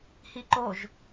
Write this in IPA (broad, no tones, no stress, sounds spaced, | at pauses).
h i ǃ o ʒ